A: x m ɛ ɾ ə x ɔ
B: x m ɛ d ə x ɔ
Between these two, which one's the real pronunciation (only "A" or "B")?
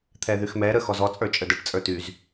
A